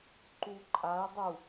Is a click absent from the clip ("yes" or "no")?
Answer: no